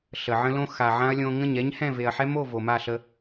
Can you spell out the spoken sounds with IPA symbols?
ɬ ə˨ ʕ ə̃˦ l õ˦ x a˨ ʕ ã˦ ɐ̯ lʲ õ˧ ŋ ə̃˦˨ ɲ ɛ˦ ɲ h ɛ̃˦˨ v e˨ ɐ̯ ħ ɛ˦ m o˦˨ v o˨ m a˦˨ ɬ ə˧

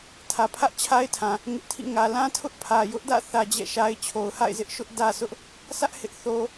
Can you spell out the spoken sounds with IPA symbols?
tʰ ä˨ pʰ ä˦ ʔ t͡ɕʰ a˦ ɪ̯ tʰ ã˨ | ŋ ɪ˦ ʔ tʰ ḭ˦˨ ŋ ä˨ l ã˦ tʰ ʊ˦ ʔ pʰ ä˨ j ʊ˦ ʔ d ä̰˦˨ θ ä˦ d͡ʑ ɛ̰˦˨ ʃ a˦ ɪ̯ t͡ɕʰ o˨ ʊ̯ h a̰˦˨ ɪ̯ z ɪ˦ ʔ ʃ ʊ˦ ʔ d ä˦ s ʊ˦ ʔ | s ä˦ ʔ h ɪ˦ ʔ θ o˦

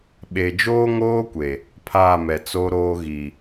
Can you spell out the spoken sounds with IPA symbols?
ɓ e˨ d͡ʒ oː˦ ŋ oː˦ kʷ e˨ | pʰ aː˦˨ m ɛ˨ t͡s o˦ ɾ oː˦ ɣ i˨

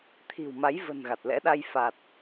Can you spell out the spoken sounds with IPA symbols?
t̪ʰ i̤˨˩ w m a˨˦ j v ə̤˨˩ n ɣ a˨˩ t̚ l ɛ̰˧˥ ɗ a˧ j f a˨˩ t̚

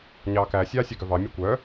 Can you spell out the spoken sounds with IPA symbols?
ɲ ɑː k æ sʲ ɑː sʲ œ ɡ œ v ɑ mʲ e kʷ œ

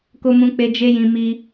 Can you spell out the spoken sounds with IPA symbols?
k o˧ m ũ˧ k͡p e˧ d͡ʒ e˦ j ĩ˧ m i˧

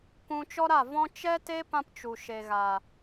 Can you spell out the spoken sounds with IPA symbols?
k ũ˧ t͡ʃ ɔ˦ ɾ a˦˨ v ɔ̃˦ t͡ʃ ɛ˦ t e˦ p ã˧ p t͡ʃ u˨ ʃ e˨ ɣ a˨

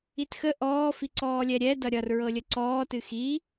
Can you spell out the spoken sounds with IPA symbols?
i t x ə ʔ ɔː f i ǀ ɔː lʲ ɛ ɾʲ ɛ d ʌ ɾʲ ʌ r ɹ ɤ lʲ ə ǀ ɔː t ɨ x i

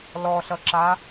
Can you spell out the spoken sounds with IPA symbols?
l ɔ ɬ ʌ ǁ a

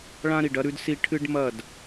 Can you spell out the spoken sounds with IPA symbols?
ɭ ã˦ ɾ i˨ ɖ ɐ˦ ɾ ʉ˦ d s i˦ ʈʰ ɨ˦ ɖ m ɐ˦˨ d

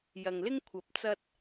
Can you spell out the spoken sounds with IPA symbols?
j ɐ˨ ŋ l ɪ˥ ŋ kʷʰ ɐ˨˥ p̚ t͡s ɐ˧ t̚

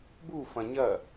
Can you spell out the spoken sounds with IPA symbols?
b u f ɐ̃ ɲ ɐ

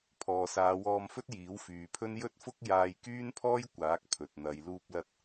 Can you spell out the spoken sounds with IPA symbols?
pʰ ɔː˨ s aː˨˧ w ɔː˧ m f ɵ˥ t̚ j iː˨˥ w f yː˨˧ pʰ ɵ˥ n j ɵ˥ t̚ f ʊ˥ k̚ j aː˧ j k yː˥ n pʰ ɔː˥ j kʷ aː˨˥ k̚ pʰ ɵ˨ t̚ n̪ ɐ˨˧ j l uː˧ p̚ l ɐ˧ t̚

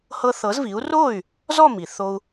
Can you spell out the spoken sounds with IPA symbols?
h ɤ˧ θ ɤ˩˥ z v i˩˥ u̯ r o˥˩ y̯ | z ɔ˥˩ m i˩ θ o˧ u̯

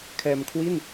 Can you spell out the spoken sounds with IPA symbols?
kʰ ɛː˧ m kʰ w i˥˩ n

